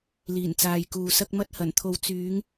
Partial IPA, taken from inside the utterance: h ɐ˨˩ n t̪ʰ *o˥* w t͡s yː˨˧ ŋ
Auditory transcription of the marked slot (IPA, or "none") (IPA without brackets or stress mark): o˨˧